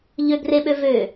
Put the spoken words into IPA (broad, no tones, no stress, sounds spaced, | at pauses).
ʎ ø ɡ r e ɓ ø v ø